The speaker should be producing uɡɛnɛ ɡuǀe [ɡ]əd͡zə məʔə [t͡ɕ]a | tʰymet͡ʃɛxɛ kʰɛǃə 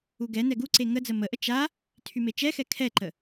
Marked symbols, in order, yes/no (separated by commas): no, no